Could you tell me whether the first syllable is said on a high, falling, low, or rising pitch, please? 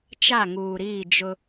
falling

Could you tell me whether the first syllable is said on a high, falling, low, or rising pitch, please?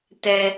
low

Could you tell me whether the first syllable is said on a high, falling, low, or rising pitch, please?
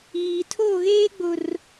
low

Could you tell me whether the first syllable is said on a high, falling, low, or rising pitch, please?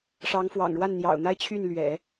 rising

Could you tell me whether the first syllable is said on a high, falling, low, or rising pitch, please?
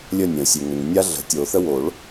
falling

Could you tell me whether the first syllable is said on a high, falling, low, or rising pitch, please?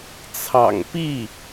low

